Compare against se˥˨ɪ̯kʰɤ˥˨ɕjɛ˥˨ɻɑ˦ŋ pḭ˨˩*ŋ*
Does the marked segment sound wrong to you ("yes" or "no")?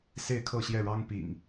no